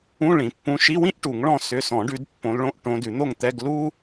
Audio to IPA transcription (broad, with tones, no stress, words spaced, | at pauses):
ũ˧˥˧ ɭĩ˨˩˦pːũ˧˥˧ ʃi˧˥˧wĩ˥ʔ ʈu˨˩˦ŋɭɔ̃˥˨ sʏ˧˥˧ sɔ̃˨˩˦ɖʉ˨˦d pːõ˨˦lɭõ˧˥˧ʔ ʈõ˨˦dʉ˨˩˦n̪o˥˨ŋt̪ɛ˧˥˧ɡ lu˥